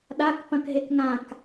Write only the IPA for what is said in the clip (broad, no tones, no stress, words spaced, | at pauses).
ɗak pɐ̃kɦekŋãk